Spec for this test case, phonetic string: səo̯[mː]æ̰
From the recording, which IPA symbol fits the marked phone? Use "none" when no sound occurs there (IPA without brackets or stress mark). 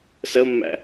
mː